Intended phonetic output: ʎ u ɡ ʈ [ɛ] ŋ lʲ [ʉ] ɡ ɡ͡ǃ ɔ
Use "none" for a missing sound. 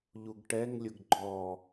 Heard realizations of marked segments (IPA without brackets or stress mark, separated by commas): ɛ, ʊ